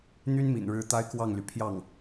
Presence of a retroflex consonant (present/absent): present